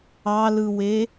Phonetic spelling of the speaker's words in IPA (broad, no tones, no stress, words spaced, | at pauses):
ɑlɯwe